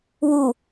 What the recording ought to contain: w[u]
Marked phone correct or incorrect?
correct